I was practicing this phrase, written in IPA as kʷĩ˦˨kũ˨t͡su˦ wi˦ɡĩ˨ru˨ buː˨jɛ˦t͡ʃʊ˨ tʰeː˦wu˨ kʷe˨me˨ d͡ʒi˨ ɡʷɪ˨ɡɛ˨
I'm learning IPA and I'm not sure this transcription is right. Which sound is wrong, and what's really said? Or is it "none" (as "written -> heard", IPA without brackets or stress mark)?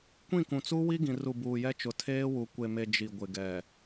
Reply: none